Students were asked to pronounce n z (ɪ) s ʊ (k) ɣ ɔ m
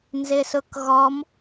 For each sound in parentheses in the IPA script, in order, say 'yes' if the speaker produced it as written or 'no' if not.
yes, yes

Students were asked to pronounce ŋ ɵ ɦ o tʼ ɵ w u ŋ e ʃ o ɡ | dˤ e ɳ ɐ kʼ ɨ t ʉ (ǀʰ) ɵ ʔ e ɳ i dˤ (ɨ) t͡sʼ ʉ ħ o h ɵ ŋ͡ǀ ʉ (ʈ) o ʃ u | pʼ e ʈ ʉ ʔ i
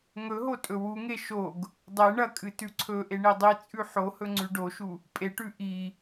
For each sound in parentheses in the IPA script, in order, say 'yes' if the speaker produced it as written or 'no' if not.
yes, no, no

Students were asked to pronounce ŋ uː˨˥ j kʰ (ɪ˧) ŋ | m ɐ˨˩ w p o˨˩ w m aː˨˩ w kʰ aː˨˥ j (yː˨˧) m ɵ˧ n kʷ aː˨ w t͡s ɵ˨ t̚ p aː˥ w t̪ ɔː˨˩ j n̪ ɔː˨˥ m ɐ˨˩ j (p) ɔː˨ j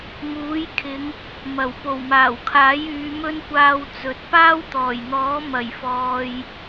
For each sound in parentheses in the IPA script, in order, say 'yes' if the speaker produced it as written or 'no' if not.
no, yes, no

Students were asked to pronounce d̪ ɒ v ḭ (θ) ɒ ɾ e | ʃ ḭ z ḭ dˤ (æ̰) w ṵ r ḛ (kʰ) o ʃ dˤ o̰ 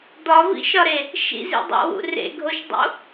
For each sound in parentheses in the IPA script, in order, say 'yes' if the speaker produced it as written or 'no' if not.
no, yes, no

